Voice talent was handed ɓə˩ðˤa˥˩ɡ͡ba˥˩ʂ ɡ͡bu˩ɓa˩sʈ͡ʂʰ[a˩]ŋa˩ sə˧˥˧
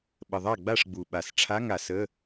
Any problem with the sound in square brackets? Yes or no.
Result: yes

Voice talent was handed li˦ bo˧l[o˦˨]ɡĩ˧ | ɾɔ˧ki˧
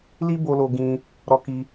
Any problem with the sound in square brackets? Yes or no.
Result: yes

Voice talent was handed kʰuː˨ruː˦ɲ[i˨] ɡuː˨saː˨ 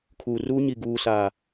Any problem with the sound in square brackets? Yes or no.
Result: no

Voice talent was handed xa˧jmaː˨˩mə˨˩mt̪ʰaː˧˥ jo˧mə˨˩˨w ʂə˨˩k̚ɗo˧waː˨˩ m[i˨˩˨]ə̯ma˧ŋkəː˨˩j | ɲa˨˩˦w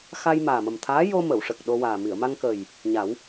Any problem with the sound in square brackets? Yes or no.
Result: no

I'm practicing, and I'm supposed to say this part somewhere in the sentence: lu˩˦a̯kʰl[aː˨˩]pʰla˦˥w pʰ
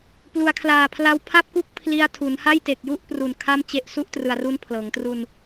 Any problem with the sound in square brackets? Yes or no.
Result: no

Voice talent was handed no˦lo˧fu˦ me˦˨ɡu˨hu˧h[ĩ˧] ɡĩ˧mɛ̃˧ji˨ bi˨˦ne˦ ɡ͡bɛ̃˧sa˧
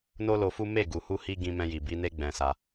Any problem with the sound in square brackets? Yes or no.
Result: yes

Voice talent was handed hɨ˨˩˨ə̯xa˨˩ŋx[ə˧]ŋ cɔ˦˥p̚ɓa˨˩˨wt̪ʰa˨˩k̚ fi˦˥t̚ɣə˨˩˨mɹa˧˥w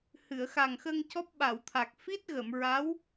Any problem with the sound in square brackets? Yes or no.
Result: no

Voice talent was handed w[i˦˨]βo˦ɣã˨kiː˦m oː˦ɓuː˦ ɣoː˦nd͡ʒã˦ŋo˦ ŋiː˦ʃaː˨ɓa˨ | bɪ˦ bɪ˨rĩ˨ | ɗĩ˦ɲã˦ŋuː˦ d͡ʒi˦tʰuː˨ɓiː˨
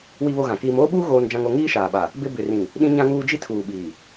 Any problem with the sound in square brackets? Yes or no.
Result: yes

